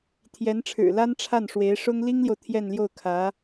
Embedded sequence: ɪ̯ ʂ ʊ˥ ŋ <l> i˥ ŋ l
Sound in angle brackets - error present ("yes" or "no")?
no